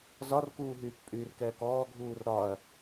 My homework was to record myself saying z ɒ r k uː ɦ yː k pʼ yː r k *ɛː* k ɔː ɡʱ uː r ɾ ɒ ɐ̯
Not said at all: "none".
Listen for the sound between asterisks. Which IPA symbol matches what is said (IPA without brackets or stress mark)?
ɛː